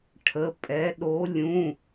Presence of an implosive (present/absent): present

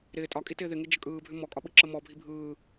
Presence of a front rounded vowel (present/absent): present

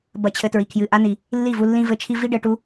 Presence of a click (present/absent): absent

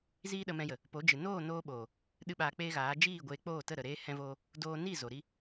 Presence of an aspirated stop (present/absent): absent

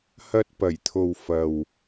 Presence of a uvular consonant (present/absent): absent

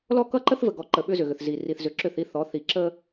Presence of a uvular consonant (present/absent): absent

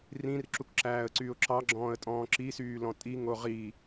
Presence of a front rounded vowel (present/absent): present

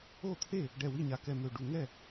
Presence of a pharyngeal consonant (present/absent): absent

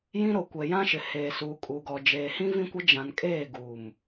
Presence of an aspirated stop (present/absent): absent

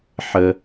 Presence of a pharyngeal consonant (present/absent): present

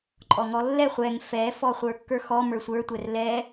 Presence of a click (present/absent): present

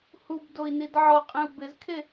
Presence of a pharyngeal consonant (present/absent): present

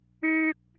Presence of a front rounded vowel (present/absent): present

